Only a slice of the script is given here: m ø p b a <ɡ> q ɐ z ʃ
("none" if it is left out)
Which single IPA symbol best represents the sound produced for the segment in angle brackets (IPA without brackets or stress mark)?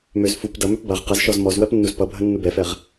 ʁ